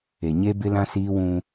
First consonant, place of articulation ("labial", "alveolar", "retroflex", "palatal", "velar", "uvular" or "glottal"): palatal